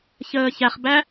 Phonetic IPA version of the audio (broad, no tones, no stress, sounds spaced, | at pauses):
ç əː ç æ χ b æ